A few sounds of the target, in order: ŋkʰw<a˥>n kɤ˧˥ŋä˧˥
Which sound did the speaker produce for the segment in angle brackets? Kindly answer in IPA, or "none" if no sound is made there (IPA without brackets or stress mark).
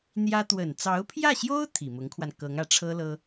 a˧